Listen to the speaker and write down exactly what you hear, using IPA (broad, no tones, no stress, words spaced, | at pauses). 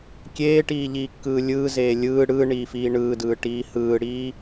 kʲeːʈiːʎiːkːɯː lʲɯːzeː lʲɯː ɽɯːɳiːfiː ɳɯːdɯːʈiː hɯːɽiː